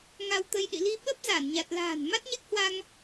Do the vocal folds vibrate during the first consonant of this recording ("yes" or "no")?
yes